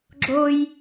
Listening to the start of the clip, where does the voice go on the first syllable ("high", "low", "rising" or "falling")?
high